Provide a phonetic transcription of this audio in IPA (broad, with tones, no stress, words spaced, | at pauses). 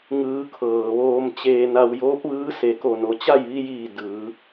ŋɯː˩˧ kʰɤː˩ʋoː˧mt͡ɕeː˧na˧w joː˧˥p̚ʋɯː˧˥ se˩ko˧˩no˩˧t͡ɕa˥˨j ʋi˧jiː˧˩ dɯː˩˧